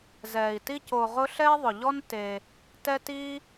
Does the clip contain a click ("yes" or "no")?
no